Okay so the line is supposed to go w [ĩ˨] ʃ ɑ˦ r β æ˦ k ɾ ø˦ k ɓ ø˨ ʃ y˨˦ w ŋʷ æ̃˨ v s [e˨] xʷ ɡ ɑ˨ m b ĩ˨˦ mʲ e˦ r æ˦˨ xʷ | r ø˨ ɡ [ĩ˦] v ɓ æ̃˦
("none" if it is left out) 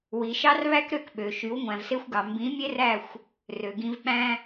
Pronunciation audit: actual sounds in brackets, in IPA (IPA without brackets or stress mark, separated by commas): i˨, e˦, ĩ˦